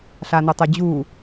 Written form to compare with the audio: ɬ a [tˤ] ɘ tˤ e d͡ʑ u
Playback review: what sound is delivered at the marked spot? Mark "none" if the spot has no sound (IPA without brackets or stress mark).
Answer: n